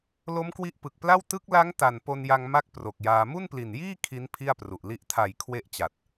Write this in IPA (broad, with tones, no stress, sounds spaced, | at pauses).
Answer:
l o˦˥ m k w i˦˥ ʔ p ɯ˨˩ k̚ p l a˥˩ w t ɯ˦˥ k̚ l a˦˥ ŋ t a˨˩ n p o˧ n j a˧ ŋ m a˥˩ k̚ p r o˨˩ k̚ j aː˧ m u˥˩ n p l i˨˩ n j iː˥˩ kʰ i˦˥ n pʰ i˥˩ a̯ p r u˨˩ ʔ l i˥˩ ʔ tʰ a˨˩ j kʰ w e˦˥ ʔ t͡ɕ a˨˩ t̚